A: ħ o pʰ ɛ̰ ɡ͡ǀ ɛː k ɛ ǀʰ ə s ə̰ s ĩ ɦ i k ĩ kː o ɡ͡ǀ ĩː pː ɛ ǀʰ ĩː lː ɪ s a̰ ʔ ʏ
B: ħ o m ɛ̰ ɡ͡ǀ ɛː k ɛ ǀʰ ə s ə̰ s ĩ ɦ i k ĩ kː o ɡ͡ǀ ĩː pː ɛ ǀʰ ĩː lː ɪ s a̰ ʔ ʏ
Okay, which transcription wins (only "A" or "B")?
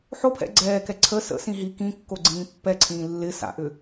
A